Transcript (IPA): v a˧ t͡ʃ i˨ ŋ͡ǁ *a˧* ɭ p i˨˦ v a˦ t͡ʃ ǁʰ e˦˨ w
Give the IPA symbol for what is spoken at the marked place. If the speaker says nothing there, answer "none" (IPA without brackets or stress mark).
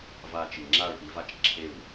a˦˨